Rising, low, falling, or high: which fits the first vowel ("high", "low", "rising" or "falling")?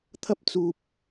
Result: high